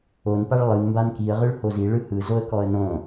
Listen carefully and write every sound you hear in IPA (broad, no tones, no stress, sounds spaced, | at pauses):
o n p a ɭ lˠ ɯ n m b a n k i ə̯ ʁ ɯ ɭ h o z i ɭ ɯ h ɯ z o ə̯ k ɔ ə̯ n õ